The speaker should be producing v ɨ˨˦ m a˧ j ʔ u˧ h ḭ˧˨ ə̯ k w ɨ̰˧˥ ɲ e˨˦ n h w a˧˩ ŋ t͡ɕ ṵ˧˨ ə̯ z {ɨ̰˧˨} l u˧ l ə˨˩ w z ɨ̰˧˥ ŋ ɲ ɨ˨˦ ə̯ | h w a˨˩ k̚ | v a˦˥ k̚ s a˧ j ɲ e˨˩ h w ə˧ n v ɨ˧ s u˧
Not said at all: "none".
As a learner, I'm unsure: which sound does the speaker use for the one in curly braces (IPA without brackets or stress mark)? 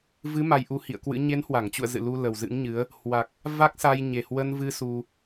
ɨ̰˧˨